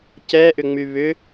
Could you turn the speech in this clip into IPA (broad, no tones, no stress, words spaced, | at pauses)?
cɛʔʏŋ͡my βʏ